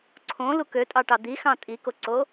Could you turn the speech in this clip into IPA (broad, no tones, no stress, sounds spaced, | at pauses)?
ǀʰ õ l u k ø tʼ ɑ ʈ ɑ d̪ i x ɑ̃ tʼ i k o ǀ o